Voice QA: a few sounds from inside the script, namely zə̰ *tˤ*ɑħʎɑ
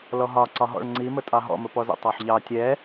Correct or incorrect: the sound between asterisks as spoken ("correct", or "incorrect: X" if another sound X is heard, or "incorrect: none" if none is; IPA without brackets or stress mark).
correct